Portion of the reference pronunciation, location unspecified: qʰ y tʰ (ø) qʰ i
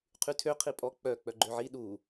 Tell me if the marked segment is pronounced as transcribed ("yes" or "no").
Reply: yes